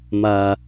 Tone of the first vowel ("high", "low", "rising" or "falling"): low